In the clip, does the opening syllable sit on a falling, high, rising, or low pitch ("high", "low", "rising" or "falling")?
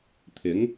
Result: rising